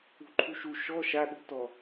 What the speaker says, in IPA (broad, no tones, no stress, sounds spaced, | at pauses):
ṳ ǃʰ u ʃ u ʃ ɔ ʃ a ɗ ṳ t ɔ